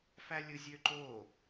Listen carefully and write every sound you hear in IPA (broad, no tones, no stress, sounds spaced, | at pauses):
f æ lʲ ɯ zʲ ø ǃ o